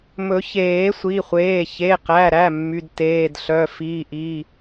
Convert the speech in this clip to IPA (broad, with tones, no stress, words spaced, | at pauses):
mɵ˨˩˦çeː˨˩˦sʷi˩˧˩χʷeː˩˧˩ çe˩˧˩qæ˩˧˩ɾæ˩˧˩ mːy˩˧˩dteː˩˧˩d ɬœ˩˧˩fi˩˧˩ʔi˩˧˩